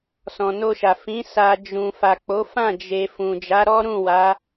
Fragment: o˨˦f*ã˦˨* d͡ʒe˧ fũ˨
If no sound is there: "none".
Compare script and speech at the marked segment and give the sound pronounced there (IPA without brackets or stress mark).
ã˦˨